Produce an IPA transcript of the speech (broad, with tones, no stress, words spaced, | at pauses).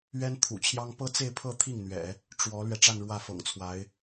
ɥɛ˥n t̪ʰṵ˨˩t͡ɕʰjɑ˥ŋ pɤ˥t͡se˥˧ɪ̯pʰɤ˥˧ t̪ʰi˥˩ŋn̪ɥɛ̰˨˩˦ | ʈ͡ʂwɔ˧˥lɥɛ˧ ʈ͡ʂa˥˧nɻwä˥˩fɤ̰˨˩ŋt͡sʰwa˧˥ɪ̯